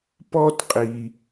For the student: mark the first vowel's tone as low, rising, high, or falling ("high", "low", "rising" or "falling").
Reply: high